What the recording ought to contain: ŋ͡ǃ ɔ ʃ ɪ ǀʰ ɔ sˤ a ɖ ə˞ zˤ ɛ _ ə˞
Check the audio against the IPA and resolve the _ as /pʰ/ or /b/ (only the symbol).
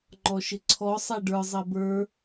b